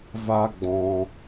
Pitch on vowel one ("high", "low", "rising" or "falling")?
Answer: high